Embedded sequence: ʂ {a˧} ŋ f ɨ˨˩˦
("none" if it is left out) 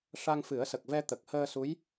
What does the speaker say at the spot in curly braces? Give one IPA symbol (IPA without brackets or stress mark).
a˧